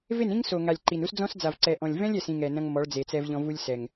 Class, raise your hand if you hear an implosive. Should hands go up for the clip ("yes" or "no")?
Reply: no